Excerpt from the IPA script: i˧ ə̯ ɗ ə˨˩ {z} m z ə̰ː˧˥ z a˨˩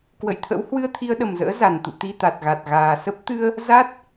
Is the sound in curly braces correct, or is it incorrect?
incorrect